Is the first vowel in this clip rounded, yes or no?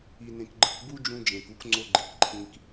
no